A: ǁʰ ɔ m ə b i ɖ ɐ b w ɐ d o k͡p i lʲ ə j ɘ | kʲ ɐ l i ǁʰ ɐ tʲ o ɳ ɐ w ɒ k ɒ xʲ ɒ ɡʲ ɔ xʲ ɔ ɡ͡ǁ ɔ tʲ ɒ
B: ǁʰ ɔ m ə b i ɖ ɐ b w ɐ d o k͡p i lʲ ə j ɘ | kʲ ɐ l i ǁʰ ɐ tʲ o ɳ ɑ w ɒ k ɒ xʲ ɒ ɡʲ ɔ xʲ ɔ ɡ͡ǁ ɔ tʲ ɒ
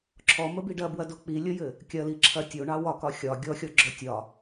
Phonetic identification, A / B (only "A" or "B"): B